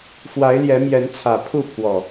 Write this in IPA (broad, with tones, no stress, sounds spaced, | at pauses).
f w a˨˦ ɪ̯ l j ɛ˨˦ m j ɛ˨˦ n t͡sʰ ä˨˩ pʰ u˥˨ pʰ w ɔ˨˩